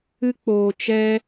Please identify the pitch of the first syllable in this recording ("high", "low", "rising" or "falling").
high